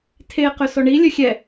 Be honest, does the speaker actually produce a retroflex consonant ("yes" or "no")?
yes